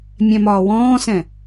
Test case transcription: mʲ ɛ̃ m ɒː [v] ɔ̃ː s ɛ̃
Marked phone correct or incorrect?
incorrect